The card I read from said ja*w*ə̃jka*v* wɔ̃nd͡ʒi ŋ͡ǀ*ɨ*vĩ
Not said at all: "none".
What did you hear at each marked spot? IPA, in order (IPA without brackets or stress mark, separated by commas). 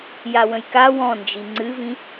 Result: w, none, ɨ